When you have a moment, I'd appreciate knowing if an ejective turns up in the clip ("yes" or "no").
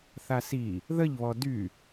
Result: no